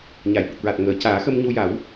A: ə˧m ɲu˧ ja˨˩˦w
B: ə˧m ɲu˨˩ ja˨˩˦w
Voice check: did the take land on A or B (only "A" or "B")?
A